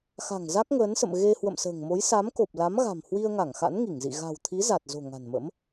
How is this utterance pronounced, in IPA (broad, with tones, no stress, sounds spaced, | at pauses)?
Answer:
x a̤˨˩ ŋ z a˦˥ k̚ ŋ əː˨˦ n s ə̰˧˨ m ɣ e˧ h w ə̰˧˨ m s ə̤ː˨˩ ŋ m o˨˦ j s a˨˦ m k o˨˩ p̚ l a˨˦ m ɣ a̤˨˩ m h w i˧ ə̯ ŋ a˧˩ ŋ x a̰˧˥ n ŋ i˧˩ ŋ z ḭ˧˨ ɣ a̤˨˩ w t̪ʰ i˨˦ z a˨˩ t̚ z o̤˨˩ ŋ a̤˨˩ n m ə̰˧˥ m